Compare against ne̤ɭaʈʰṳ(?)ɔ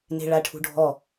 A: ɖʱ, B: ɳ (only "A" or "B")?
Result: A